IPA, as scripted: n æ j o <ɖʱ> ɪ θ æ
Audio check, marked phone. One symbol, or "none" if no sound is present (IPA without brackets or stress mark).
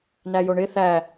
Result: ɳ